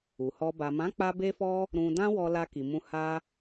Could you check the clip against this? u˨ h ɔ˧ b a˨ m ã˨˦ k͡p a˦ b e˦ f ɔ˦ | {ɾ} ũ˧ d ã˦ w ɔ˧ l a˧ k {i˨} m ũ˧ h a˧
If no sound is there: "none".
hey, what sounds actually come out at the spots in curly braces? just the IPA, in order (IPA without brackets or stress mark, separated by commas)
ɾ, i˨